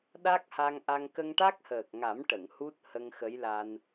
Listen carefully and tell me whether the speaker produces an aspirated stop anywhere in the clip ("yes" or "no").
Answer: no